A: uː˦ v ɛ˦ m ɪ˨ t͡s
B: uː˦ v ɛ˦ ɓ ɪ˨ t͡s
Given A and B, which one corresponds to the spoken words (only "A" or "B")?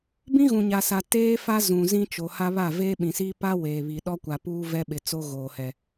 B